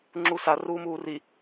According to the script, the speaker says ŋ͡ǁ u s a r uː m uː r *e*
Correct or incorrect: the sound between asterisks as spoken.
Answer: incorrect: i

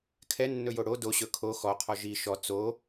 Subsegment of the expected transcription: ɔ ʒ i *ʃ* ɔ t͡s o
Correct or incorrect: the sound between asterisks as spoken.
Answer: correct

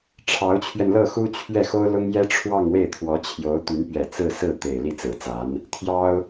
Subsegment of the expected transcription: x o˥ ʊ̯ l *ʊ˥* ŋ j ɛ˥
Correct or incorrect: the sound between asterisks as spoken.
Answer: correct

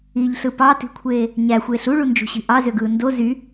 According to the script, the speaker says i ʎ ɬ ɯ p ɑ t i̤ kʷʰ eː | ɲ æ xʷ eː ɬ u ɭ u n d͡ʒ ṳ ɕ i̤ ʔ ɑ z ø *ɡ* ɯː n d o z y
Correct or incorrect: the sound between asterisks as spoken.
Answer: correct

